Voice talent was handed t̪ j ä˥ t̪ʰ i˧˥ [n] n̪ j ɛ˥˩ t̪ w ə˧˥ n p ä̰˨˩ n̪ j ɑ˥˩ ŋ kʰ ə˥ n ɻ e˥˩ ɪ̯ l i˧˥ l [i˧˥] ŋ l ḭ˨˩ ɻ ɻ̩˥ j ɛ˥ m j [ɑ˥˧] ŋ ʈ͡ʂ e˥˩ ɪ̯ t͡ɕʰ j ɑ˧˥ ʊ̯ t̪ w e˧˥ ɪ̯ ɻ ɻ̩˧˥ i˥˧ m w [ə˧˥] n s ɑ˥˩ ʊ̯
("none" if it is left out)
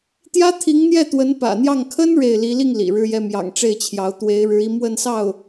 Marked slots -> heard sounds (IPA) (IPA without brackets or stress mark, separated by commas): ŋ, i˥˩, ɑ̰˨˩, ə˥˧